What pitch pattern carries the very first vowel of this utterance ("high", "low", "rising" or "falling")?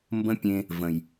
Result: high